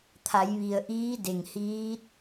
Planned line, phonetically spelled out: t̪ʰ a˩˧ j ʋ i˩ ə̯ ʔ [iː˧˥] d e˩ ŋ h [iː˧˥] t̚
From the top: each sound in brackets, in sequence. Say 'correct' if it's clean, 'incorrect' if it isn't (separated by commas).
correct, correct